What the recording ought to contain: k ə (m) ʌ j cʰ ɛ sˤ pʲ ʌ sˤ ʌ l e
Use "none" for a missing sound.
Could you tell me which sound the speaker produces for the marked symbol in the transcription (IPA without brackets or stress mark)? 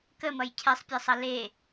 m